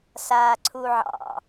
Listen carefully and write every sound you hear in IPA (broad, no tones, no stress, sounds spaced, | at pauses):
s aː ǀʰ u ʕ ɑ̰